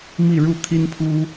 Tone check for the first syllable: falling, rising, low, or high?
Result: falling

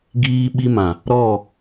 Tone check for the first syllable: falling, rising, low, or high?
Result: high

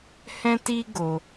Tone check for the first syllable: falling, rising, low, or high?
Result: high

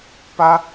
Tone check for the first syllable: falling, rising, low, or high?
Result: high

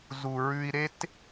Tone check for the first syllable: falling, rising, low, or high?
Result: low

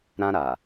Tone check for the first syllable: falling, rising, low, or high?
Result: high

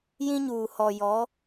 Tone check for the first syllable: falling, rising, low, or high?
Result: high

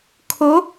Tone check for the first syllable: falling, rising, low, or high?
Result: rising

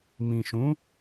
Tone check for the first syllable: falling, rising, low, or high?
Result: low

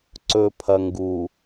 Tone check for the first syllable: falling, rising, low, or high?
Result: low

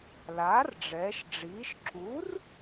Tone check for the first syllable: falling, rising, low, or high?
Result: rising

